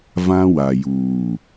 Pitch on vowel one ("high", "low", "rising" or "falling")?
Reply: high